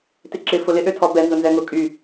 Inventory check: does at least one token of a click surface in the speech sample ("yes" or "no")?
yes